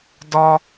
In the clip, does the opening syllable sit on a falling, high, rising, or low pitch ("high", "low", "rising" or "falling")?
high